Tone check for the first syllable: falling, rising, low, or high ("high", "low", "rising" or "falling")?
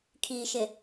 low